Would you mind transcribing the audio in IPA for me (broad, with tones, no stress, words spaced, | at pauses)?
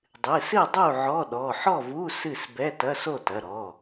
dˤɨ˩˧˩ sɨ˥˨dˤu˥˨ ʕɔ˧˥˧ɗɔ˩˧˩ ħɔ˥˨vu˧˥˧ sɨ˥˨sbɛ˧˥˧tɐ˧˥˧ so˥˨tɐ˩˧˩ɾɔ˩˧˩